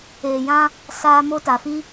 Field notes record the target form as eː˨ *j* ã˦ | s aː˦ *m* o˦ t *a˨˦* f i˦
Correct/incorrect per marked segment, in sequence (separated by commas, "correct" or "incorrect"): correct, correct, incorrect